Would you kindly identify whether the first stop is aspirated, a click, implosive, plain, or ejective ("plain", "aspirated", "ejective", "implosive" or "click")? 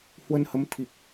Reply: aspirated